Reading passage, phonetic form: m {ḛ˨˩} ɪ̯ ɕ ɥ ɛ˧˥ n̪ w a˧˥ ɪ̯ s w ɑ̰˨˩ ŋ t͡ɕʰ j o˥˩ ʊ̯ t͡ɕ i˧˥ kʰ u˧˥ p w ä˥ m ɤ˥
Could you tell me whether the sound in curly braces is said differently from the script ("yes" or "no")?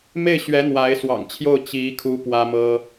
yes